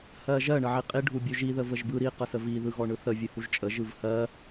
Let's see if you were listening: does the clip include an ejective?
yes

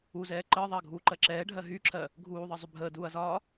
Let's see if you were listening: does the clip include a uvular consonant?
no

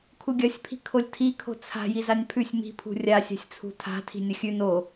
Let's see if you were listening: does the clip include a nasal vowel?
no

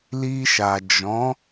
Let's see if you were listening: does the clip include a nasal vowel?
yes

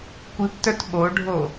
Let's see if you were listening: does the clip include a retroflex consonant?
yes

